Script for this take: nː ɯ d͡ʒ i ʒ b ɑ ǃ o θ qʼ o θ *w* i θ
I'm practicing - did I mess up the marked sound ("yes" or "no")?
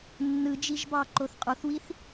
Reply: no